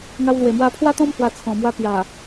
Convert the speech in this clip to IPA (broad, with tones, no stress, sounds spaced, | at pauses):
ŋ a˧ w l w e˨˩ m w a˧ pʰ w a˦ t̪ ɔ̃˦ m h w a˧ t͡sʰ ɔ̃˨˩ m w a˧ p j a˨˩